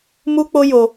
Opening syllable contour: high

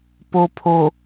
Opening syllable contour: low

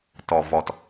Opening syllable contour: low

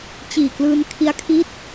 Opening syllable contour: low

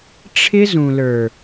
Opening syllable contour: high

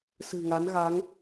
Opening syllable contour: low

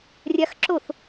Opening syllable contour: high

